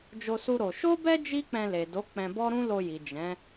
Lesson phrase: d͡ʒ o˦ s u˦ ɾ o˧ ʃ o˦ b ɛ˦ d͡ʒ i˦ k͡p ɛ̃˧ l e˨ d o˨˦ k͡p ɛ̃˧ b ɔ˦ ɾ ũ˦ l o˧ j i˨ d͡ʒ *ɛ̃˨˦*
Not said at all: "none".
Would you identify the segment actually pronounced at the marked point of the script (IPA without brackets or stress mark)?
ɛ̃˨˦